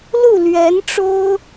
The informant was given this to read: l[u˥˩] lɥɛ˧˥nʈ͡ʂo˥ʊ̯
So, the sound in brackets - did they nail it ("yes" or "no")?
yes